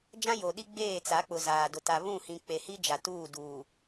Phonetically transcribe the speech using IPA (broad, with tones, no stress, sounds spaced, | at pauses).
d͡ʒ ã˦ j o˨ ɗ i˦ ɡ͡b eː˦˨ t͡s a˨˦ k͡p ʊ˨ z aː˨ d ʊ˨ t a˨ β ũ˦˨ h ĩ˨ k͡p e˨ h i˦ d͡ʒ a˨ t uː˦˨ d uː˨